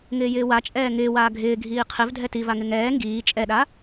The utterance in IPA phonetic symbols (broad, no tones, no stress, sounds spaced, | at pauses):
ŋ ɪː j ɪː w a t͡ʃʼ ɛː ŋ ɪː w aː ɡʱ ɪː ɡʱ iː qʰ ɪ v dʱ ɛ t i v a ŋ ɪ ŋ ɛː ŋ ɡ iː t͡ʃʼ ɛ ɗ a